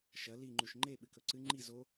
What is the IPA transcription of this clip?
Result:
ʃɐ liŋ͡ǃʉʃ ŋ͡ǃe ɓɨkɵǀɨ ŋ͡ǃi zo

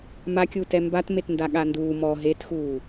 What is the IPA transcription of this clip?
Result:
makʲuːt ɛmbat metndaɠanduː mɔ ɦetxuː

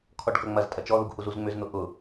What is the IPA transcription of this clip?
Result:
kʰɔɖkɐŋ͡mɐztʼɐ t͡ʃɔðuɡ huzuzŋ͡mʏzn̪ʊ ʔʊ

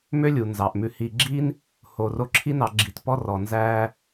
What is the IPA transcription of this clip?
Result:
mø˥lʲu˩nzɑ˩ʔmʉ˨ hi˨ɡ͡ǁi˦n | ho˨ro˦ ǁʰi˦nɑ˨ ɡ͡ǁi˨tpɔ˦ rɔ˨nzæ˥

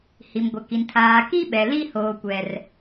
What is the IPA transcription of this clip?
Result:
hi˨mɡʷɪ˨ki˨n tʰaː˨ ki˦ɓɛ˨li˦ hoː˦kʷɛ˦r

